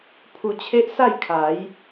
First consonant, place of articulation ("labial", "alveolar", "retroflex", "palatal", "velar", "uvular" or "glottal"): labial